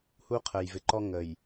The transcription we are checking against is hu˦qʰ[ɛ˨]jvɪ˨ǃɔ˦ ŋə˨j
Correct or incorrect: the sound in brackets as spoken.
incorrect: ə˨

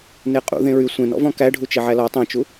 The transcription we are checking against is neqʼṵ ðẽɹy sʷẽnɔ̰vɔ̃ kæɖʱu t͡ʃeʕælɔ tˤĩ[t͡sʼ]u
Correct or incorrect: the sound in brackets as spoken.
incorrect: t͡ʃ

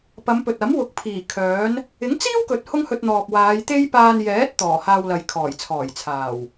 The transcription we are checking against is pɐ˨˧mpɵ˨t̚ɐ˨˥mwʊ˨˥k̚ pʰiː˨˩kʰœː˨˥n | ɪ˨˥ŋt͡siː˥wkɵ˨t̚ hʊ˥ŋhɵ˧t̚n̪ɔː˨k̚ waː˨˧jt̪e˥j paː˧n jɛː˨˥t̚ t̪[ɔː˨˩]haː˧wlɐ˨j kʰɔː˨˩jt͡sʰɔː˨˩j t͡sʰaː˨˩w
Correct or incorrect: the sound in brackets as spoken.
correct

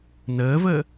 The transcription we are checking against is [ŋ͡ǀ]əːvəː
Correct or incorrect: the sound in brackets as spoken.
incorrect: n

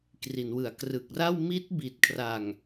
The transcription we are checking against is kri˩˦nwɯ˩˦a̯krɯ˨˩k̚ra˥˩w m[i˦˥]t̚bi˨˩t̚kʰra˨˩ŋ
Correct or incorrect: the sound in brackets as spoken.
correct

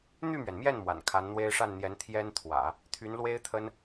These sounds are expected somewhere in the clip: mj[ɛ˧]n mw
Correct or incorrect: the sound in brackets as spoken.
incorrect: ɛ˥˩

